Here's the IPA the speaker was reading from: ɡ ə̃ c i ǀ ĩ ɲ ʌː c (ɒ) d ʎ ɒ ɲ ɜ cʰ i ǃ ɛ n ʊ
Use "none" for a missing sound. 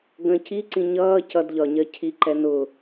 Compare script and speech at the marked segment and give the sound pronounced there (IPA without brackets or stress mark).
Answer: ʌ